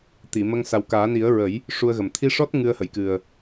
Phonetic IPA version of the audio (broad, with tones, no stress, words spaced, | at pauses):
t̪i˨˩˨mə˧ŋ sa˨˩wkaː˨˩˦ni˨˩˦ə̯ ɹə˨˩˦j | ʂu˧ə̯ɣə˨˩m t̪ʰi˧ʂɔ˦˥t̚ ŋɨ˧ə̯ hə˨˩˨jkɨ˨˩ə̯